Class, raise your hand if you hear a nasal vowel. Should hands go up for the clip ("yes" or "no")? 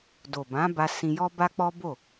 yes